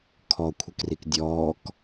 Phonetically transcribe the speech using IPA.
kʰ ɔ kʷʰ ə k r i k dʲ ɔː k

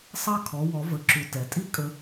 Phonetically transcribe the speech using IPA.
sˤ ɑ˧ kʰ ɔ˩˧ w ɔ˩˧ v ə˩˧ ǁ u˩ t ɛ˩˧ tʼ i˥ kʼ ə˧

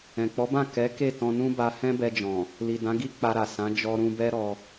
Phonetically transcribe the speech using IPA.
ɛ̃˨ k͡p ɔ˨˦ b ã˦˨ k ɛ˨˦ k e˦˨ t ɔ̃˧ n ũ˦ b a˧ h ɛ̃˦ b ɛ˧ d͡ʒ ɔ̃˨ | l i˨ d ã˨˦ ɡ i˦ k͡p a˧ ɾ a˨ s ã˨˦ d͡ʒ ɔ˧ ɾ ũ˧ b ɛ˦ ɾ ɔ˧

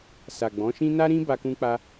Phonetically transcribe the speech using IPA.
s a˨ ɡ͡b ɔ̃˨˦ ʃ ĩ˦ n a˦ ɾ ĩ˦ b a˧ k ũ˧ k͡p a˧

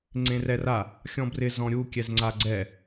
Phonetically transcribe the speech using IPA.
ŋ͡ǀ ẽ r ɛ r a | xʲ ɔ̃ b r ɪ z ɔ̃ ɾʲ u kʲ ɛ z ŋ͡ǀ a ɡ͡ǀ ɛ

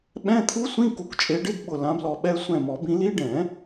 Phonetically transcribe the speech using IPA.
ɓ ɛ̃˧˥˧ t̪ʰ u˦˥ sʷ ĩ˧˥˧ k u˨˦ k t͡ʃʼ e˨˦ ɖ ɪ˧˥˧ d ɓ ʊ˧˩ l ã˨˦ b l ɔ˧˩ ɓ ɛ˧˥˧ sʷ ɛ̃˧˩ m ɔ˨˩˦ b ĩ˨˦ l i˦˥ ɖ ɛ̃˨˩˦

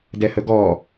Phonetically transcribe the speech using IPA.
d ɛ h ə ɡ ɔ

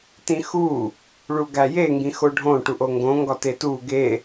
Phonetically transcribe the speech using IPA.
t ĩ x u | ɭ u ɡ æ j e ŋ ɡ ĩ x o ɖʱ õ ʈ u ʔ o ŋ ɡ õ ŋ ɡ ɒ t e t u ɡ e

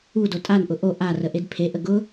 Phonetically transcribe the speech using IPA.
u d o tʼ a n ʔ ʊ ʔ o ʔ a r ə ʔ e d pʰ e ʔ ə ɡ ʊ

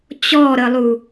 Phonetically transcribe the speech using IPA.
t͡ɕ ɔ ɾ ə lˠ u

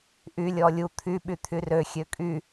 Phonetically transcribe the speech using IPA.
ʔ y lʲ ɔ lʲ u t̪ʰ y ɓ y t̪ʰ y r ø xʲ ø kʼ y

